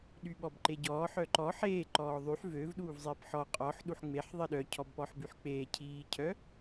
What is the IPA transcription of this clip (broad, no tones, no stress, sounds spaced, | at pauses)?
ɗ y ɓ ɔ b ǃ e ɟ ɔː ħ œ ǃ ɔ ħ eː ǃ ɔː ðˤ y ħ v ø v ɗ uː v zˤ iː p ħ ɔ qʼ ɔ ħ ɗ u ħ ŋ͡m e ħ ðˤ i ɗ œ cʰ ɔ b p ɔ ħ b y ħ k͡p eː cʰ iː cʰ œ